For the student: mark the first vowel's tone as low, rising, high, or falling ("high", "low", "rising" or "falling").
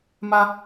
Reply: high